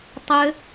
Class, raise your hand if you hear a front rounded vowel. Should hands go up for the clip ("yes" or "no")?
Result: yes